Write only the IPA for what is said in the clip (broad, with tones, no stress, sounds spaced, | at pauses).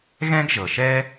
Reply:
ɣ ɛ̃˥ ɡ ʒ ɤ˨ ʃ ɛ˥